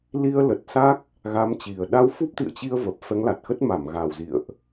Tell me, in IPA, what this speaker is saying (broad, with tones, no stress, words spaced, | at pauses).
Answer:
li˧ə̯lə˨˩t̚sa˦˥k̚ | ɣa˨˦m t͡ɕi˨˩ə̯ ɗa˧wfu˦˥p̚t̪ḭ˧˨ə̯t͡ɕi˧ə̯ və˨˩p̚ fɛ˨˦ŋla˨˩t̚xə˦˥t̚ma˧˩m ɣa˨˩wzḭ˧˨ə̯ʔ